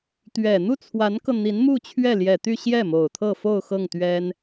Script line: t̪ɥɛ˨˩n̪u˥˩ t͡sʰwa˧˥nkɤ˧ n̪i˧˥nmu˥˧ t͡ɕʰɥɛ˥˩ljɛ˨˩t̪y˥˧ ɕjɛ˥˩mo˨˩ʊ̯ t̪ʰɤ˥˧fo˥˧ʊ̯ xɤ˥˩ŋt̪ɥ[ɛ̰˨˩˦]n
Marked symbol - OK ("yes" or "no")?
no